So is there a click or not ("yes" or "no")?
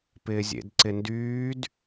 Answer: yes